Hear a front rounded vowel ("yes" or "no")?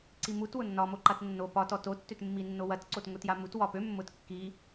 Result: yes